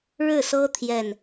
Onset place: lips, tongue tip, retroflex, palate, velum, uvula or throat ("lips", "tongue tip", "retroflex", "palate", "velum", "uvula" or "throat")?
retroflex